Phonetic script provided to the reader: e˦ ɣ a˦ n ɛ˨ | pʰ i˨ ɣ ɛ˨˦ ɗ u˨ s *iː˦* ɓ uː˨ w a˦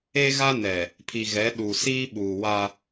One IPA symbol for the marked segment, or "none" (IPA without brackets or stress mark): iː˦